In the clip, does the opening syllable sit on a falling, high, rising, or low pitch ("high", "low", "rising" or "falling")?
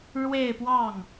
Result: falling